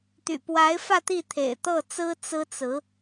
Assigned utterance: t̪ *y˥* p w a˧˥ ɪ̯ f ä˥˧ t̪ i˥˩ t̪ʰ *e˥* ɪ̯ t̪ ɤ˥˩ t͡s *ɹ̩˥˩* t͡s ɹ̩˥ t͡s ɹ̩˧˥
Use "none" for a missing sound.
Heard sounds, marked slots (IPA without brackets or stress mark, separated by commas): y̰˨˩, ḛ˨˩, ɹ̩˥